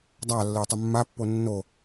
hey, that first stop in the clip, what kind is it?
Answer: plain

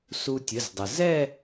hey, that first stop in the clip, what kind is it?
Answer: plain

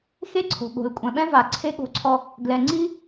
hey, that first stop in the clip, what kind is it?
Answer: click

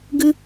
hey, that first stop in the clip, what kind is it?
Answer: plain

